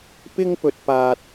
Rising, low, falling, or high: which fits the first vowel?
high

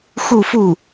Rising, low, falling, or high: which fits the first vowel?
falling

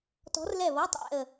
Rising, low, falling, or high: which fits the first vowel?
rising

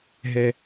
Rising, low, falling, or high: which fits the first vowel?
low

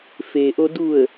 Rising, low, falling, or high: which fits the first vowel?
low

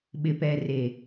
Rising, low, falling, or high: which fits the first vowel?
low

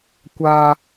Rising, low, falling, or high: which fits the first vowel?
high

